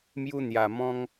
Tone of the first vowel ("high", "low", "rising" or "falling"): high